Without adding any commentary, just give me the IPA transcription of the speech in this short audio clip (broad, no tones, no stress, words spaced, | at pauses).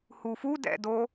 hufudɛ̰do